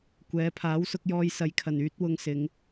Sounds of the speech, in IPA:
kʷ ɛː˨˧ pʰ aː˨˥ w s ʊ˧ k̚ j ɔː˧ j s ɐ˨ j kʰ ɐ˨˩ n yː˧ t̚ w ʊ˨ ŋ s ɪ˨˧ ŋ

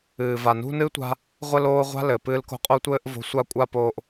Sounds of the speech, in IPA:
ɨː˨ v a˨ n ṳ˦ n ɨ˦ tʷ a̤˧ | ʁʷ ɘ˦ l oː˦ ʁʷ a̤˦ l ɘ˨ p ɨː˧ l k o̤˧ qʼ o˧ tʷ ɘː˧ ʔ v o̤˧ sʷ a˦ kʷʼ a˦ p oː˧ ʔ

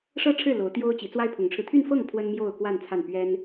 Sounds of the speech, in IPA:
ʂ ɤ˥ ʈ͡ʂʰ ɻ̩˥˩ l o˧˥ ʊ̯ t̪ j o˥ ʊ̯ t͡ɕ i˧˥ t͡s w a˥ ɪ̯ pʰ ʊ˧˥ ŋ ʈ͡ʂʰ ɻ̩˧ t̪ʰ y˥˧ n f ɤ˥˩ ŋ pʰ w ə˥ n m j o˥˧ ʊ̯ k w a˥˧ n t͡sʰ a˥˩ n p ɥ ɛ˥ n

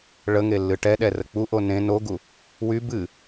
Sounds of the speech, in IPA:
ɭ ə ŋ e lː ɨ ʈ ɛ ɗ ɛ r ə k͡p u ʔ o n ẽ n o ɡ u | w y b ɨ

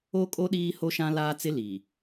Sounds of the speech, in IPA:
o˦ kʼ o˦ ɗ iː˦ h o˦ ʃ ã˦ l aː˦ t͡s ɪ˦ l iː˨

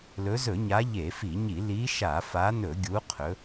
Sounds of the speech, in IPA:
l ɵ˨˦ z ɵ˧˩˧ ɲ a˨˦ ʎ e˧˩˧ f i˧˩˧ ɲ i˧˩˧ l i˨˦ ʃ a˧˩˧ f a˨˦ n ɵ˧˩˧ ɡʲ u˨˦ qʰ ɵ˨˦

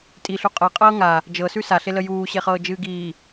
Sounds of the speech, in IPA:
tʼ i ɬ u qʼ ɤ qʼ ɤː ŋ a | d͡ʒ ɤ s ʉ s a ɬ e l ə j uː ɕ e χ ɤː d͡ʒ ɨː ɡ iː

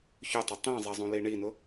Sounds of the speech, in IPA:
ç ʊ tˤ ʊ tˤ ĩ zˤ e zˤ ũ l i ɳ i n ʊ

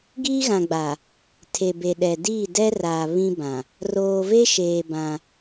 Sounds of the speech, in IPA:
ɡ i˦ ɣ ã˨ ɡ͡b a˨ | tʰ e˨ b e˨ ɗ ɛ˨ d iː˦˨ d ɛ˦ r aː˨ β ĩ˦ b ã˨ | r oː˨ v e˦ ʃ eː˨ b ã˦

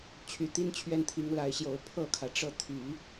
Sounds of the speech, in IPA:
t͡ɕʰ y˨˩ t̪ i˥ n t͡ɕʰ ɥ ɛ˥˩ n t̪ʰ i˧˥ ŋ l a˧˥ ɪ̯ ɕ j o˨˩ ʊ̯ pʰ ɤ˥˩ kʰ ä˩ ʈ͡ʂ ɤ˥˩ t̪ʰ y˨˩˦

